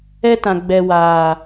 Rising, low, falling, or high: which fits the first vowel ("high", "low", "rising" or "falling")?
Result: high